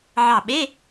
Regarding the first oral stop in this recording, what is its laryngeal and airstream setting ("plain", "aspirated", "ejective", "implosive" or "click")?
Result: implosive